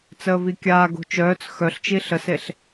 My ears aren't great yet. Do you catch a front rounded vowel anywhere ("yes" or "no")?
yes